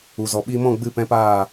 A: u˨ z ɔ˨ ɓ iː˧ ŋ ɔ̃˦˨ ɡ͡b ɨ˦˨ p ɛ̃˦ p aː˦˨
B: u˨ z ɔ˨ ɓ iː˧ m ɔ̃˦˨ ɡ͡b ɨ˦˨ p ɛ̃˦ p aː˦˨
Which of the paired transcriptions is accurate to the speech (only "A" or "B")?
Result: B